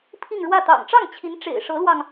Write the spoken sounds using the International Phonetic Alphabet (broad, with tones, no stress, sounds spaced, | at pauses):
pʰ i˥˧ ŋ ɻ w ä˥˩ t̪ ɑ̰˨˩ ŋ ʈ͡ʂ ɑ˥˩ ŋ t͡ɕʰ i˧˥ n ʈ͡ʂ ḛ˨˩ ɪ̯ ʂ ɤ˧˥ l w ɑ˧ ŋ